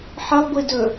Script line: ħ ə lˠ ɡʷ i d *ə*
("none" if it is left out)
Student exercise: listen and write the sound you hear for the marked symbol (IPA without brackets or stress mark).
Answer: ɵ